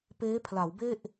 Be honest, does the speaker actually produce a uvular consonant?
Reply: no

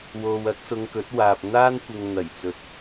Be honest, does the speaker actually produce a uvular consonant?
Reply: no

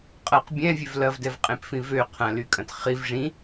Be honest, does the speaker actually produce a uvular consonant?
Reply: yes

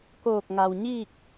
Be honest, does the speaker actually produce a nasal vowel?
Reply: no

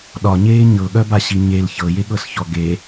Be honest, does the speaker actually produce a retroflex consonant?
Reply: no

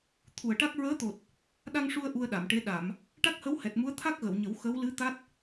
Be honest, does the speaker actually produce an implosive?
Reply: yes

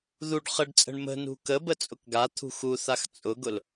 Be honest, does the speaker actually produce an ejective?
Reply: yes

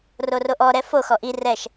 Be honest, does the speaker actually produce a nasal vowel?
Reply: no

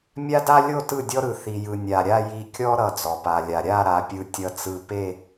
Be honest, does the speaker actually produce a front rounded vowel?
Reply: no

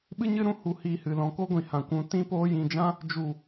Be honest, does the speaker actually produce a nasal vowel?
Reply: yes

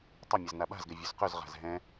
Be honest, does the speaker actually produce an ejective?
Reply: no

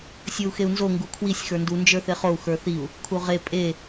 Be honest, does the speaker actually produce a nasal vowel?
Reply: no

